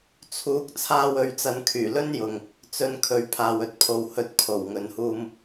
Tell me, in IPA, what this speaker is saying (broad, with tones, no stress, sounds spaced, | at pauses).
t͡sʰ uː˨˥ k̚ t͡sʰ aː˧ w ɵ˨ ɥ t͡s ɐ˨ n kʰ yː˨˩ l ɵ˥ n j ʊ˨ ŋ | t͡s ɵ˧ n kʰ ɵ˨ ɥ pʰ aː˨ w ɵ˨ t̚ pʰ o˨ w h ɵ˨˥ t̚ pʰ o˨˩ w ŋ ɵ˨ n h uː˧ m